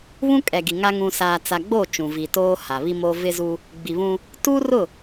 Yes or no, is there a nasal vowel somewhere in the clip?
yes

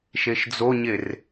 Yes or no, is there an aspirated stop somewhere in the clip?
no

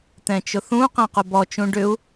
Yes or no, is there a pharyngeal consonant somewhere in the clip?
no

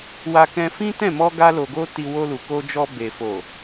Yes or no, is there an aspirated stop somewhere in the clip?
no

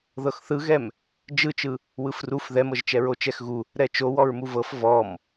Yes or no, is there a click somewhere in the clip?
no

